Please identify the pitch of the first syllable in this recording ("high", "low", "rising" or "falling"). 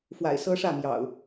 low